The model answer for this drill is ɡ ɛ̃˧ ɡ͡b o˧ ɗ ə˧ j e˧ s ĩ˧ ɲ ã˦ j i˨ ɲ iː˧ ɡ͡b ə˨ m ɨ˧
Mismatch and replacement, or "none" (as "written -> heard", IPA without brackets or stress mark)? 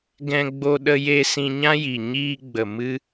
none